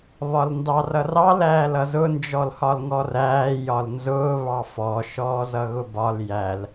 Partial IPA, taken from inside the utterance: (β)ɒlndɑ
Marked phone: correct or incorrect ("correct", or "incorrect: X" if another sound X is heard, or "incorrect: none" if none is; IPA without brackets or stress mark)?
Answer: correct